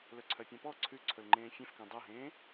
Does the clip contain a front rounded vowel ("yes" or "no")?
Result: yes